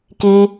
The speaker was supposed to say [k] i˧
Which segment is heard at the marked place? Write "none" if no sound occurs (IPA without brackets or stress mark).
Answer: k